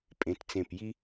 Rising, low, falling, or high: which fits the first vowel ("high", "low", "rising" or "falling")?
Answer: rising